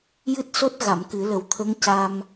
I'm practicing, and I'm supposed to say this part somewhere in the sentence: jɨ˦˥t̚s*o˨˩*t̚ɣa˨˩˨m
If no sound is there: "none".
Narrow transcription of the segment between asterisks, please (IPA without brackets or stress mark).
o˦˥